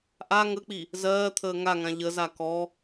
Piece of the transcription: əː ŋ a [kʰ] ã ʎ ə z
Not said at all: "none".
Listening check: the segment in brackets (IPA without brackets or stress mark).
ŋ